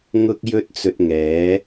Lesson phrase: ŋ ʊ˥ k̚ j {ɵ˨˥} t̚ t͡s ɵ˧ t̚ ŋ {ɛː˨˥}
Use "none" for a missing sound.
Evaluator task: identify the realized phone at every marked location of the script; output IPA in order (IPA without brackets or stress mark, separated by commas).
ɵ˥, ɛː˨˥